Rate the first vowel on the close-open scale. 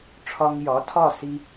open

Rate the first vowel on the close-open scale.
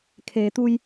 mid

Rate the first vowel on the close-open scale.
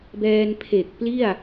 mid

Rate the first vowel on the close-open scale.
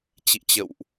close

